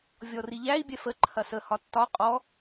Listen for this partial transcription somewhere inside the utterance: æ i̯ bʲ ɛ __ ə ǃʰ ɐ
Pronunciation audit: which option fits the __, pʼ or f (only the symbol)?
f